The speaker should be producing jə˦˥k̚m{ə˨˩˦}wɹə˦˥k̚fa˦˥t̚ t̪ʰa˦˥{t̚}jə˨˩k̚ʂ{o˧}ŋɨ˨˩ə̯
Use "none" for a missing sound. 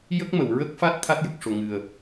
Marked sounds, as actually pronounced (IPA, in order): ə˨˩˨, t̚, o˨˩

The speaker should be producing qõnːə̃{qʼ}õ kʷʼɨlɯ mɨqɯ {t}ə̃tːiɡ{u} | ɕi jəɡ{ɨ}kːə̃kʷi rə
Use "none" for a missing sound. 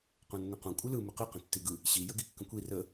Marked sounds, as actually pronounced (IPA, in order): q, q, ɯ, i

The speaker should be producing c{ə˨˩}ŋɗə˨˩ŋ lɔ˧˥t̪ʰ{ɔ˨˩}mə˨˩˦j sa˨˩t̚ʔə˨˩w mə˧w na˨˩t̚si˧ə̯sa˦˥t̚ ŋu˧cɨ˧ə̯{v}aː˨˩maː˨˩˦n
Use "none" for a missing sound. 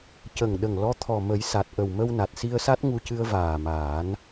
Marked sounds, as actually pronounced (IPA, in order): ə˨˩, ɔ˨˩, v

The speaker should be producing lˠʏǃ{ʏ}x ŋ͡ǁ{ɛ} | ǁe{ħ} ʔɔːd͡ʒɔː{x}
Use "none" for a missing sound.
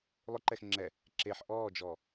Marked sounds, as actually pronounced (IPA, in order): ɛ, ɛ, ħ, none

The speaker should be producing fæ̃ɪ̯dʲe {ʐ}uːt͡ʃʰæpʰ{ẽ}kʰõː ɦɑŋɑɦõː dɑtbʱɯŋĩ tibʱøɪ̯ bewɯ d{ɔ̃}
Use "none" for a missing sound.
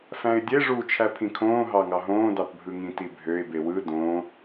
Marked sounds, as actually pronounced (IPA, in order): ʐ, ĩ, õ

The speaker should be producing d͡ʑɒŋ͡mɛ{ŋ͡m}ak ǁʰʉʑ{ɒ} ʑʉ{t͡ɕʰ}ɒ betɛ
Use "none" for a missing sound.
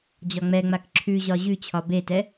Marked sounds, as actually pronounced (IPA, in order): ŋ͡m, ɒ, t͡ɕʰ

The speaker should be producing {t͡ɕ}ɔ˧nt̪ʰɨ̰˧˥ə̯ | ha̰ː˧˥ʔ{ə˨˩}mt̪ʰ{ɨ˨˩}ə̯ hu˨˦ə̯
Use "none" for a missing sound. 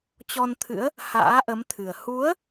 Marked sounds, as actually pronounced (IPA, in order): t͡ɕ, ə˨˦, ɨ˨˩

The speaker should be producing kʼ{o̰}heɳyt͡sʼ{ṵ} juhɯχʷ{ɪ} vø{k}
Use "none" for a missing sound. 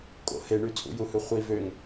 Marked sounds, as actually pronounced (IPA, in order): o̰, ṵ, i, ŋ

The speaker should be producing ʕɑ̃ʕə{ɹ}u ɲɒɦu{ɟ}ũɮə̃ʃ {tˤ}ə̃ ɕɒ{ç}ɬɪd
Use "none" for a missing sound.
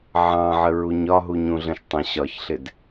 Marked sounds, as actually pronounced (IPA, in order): ɹ, ɲ, tˤ, ç

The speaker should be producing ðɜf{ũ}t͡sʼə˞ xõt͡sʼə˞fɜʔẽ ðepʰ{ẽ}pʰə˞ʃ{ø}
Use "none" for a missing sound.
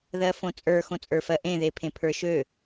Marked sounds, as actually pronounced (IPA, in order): õ, ẽ, ø

